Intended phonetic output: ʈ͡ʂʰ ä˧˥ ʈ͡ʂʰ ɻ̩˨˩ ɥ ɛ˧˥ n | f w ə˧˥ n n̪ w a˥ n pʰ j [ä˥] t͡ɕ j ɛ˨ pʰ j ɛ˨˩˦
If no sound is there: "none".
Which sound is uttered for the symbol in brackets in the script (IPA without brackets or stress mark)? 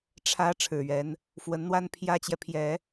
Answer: ä˥